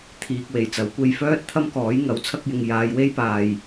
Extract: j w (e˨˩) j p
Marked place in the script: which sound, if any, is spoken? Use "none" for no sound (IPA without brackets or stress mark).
e˥